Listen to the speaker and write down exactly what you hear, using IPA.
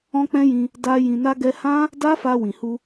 ɔ̃˦k͡pɛ̃˦jĩ˧ | da˦ jĩ˧na˦ɡɛ˦ hã˦ | da˦ fa˧ wĩ˨hu˧

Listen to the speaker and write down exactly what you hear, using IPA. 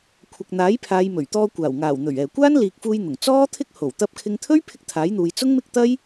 kʷʰɐ˨k̚n̪aː˨˥jpʰaː˨˧jmɵ˨˩ɥ t̪ɔː˧ kʷaː˨˩wŋaː˨˩w n̪ɵ˨˩ɥ ɛː˨˩kʷaː˥nliː˨k̚fuː˧j n̪ʊ˨˩ŋt͡sɔː˥t̪ʰɪ˥k̚ ho˨˩w t̪ɐ˧p̚kʰɪ˧ŋt̪ʰɵ˥ɥ pʰɪ˥k̚t̪ʰaː˨˥jn̪uː˨˧j t͡sʊ˥ŋmɪ˥k̚t̪ɐ˥j

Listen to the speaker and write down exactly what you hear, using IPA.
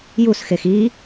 jusxex i

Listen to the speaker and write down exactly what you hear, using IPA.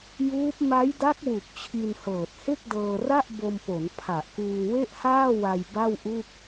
juː˦˥p̚ ma˦˥jda˦˥k̚ wu˨˩k̚t͡ɕʰi˧nhɤː˨˩t̚ he˥˩k̚dɤː˧ra˥˩ʔ bo˧mpo˩˦n pʰa˨˩ʔkuː˧we˥˩ʔhaː˥˩ wa˧j ba˥˩wʔu˥˩k̚

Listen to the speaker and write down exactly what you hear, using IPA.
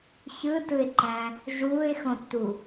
çɯtɯɪ̯ǃæ̃ | ʒuːɪ̯xõtːu

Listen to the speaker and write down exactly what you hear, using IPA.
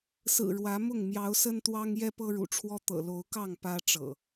sɹ̩˨˩ ɻwä˨˦mʊ˥˨ŋ mjɑ˨˦ʊ̯sə˦nt̪wɑ˦ŋ jɛ˦pɤ˦ɻṵ˨˩ʈ͡ʂʰwɔ˦ t̪ɤ̰˨˩lo˨˦ʊ̯kɑ˥˨ŋ pä˦ʈ͡ʂɤ̰˨˩

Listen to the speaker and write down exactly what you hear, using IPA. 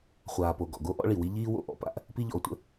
χʷaː˩po˩ ɡɔ̰˩ ɡo˥ ʔɔ̰˥ɭi˩wi˥ ʎiː˥ wo̰˩ʔɔ̰˥pa̰˥ʔ | pi˥ʎɔ̰˩o̯tʷə̰˥

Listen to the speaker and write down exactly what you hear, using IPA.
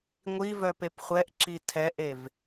ŋʷivœ pepχʷɛʔǁi tʰɛʔev

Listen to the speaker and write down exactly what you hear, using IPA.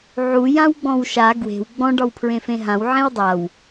ʕu jãwɡ͡bɔ̃wʃa ɡwe̤w ɡ͡bɔ̃ ɖɒwpʰɹẽfẽɦãw ʕẽwdˤaw

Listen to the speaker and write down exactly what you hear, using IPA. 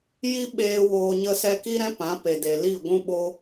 ji˦ ɓeː˦woː˧ɲə˦sɛ˦ ki˦ɾɛ̃˦ pã˨˦pe˨ de˨li˦˨ ɡʷũ˧ɓo˧

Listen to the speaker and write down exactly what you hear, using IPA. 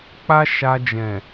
k͡pa˦ʃa˧d͡ʒɛ̃˨

